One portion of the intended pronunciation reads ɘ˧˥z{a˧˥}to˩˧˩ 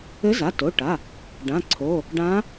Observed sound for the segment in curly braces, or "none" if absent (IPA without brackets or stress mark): a˩˧˩